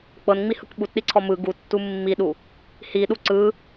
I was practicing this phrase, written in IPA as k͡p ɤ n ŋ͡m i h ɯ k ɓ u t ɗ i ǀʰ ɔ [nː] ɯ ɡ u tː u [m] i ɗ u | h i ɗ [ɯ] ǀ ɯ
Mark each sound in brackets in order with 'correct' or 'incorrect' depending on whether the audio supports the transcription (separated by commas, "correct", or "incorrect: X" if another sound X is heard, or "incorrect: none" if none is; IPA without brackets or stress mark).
incorrect: m, incorrect: mː, incorrect: u